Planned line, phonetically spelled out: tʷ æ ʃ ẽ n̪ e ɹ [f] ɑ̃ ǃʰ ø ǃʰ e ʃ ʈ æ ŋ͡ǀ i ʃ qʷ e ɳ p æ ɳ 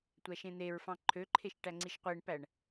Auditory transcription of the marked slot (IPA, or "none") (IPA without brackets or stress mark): f